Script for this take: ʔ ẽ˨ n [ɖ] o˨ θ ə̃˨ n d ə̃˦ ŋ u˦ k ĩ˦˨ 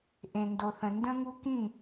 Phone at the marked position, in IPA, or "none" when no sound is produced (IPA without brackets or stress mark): d